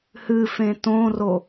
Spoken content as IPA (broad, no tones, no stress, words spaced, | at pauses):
hɨfẽ tõro